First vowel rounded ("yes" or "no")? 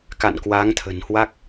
no